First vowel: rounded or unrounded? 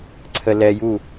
unrounded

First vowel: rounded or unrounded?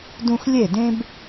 rounded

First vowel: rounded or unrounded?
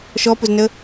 rounded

